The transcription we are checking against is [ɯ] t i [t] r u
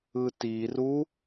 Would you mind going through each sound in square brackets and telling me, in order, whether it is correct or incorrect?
correct, incorrect: none

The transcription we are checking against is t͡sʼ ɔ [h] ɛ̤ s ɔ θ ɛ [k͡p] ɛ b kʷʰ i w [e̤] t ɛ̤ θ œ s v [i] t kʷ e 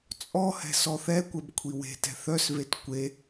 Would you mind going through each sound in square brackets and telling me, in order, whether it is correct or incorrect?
correct, incorrect: kʷ, correct, incorrect: e

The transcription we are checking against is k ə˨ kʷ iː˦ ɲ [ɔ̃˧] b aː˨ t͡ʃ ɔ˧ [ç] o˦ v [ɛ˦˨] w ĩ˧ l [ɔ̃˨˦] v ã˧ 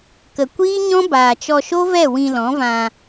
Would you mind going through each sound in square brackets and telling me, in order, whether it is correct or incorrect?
incorrect: ɔ̃˦, incorrect: ʃ, correct, correct

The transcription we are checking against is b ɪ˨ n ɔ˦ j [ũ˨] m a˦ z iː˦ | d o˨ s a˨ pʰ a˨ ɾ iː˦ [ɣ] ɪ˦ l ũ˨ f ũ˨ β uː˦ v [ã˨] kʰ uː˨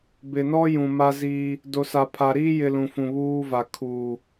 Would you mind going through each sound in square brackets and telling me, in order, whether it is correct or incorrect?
correct, incorrect: j, incorrect: a˨

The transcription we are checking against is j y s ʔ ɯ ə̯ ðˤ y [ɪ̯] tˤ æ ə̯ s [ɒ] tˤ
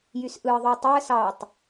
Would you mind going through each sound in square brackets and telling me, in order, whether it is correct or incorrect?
incorrect: ə̯, incorrect: ɑ

